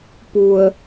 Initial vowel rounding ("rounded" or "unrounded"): rounded